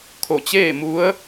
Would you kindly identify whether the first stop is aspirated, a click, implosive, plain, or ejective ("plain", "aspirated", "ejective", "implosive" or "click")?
aspirated